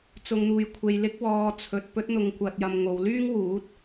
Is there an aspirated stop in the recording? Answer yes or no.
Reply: yes